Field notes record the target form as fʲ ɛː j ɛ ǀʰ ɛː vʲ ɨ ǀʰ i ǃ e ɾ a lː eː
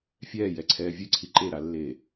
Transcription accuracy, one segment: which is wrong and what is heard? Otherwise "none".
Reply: none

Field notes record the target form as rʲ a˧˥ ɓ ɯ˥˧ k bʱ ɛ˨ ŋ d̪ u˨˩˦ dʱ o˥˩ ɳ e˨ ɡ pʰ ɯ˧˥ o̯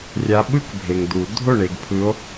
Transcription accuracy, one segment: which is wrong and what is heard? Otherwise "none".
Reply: ɛ˨ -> e˨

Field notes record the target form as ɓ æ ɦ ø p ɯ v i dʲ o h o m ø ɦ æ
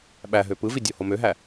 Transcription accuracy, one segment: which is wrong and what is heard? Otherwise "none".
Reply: none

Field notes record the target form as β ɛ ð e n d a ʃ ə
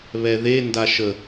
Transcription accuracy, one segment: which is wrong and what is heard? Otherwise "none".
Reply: none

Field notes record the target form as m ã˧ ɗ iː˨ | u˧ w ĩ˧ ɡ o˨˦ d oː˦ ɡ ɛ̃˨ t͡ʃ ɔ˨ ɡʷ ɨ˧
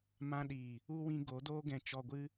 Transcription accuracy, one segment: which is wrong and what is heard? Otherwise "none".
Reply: none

